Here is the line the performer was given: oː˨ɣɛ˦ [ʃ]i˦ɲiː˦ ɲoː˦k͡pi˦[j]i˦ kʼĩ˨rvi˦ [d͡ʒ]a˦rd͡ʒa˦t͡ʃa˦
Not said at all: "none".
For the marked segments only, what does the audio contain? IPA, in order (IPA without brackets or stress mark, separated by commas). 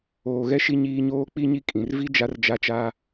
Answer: ʃ, ɲ, d͡ʒ